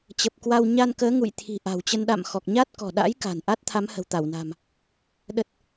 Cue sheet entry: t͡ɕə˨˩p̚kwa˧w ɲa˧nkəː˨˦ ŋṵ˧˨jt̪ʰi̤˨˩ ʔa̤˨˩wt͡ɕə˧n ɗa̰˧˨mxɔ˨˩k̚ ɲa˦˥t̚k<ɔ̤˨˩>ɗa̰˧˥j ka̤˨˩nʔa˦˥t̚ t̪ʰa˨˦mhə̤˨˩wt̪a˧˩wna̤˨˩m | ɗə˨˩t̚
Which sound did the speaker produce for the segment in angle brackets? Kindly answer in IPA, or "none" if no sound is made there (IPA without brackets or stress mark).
ɔ̤˨˩